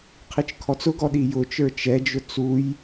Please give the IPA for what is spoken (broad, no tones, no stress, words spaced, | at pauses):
qʰit͡ʃkʰɔt͡sʊɡɔ ɗijʊt͡ʃə˞ t͡ʃɛd͡ʒʊ t͡suj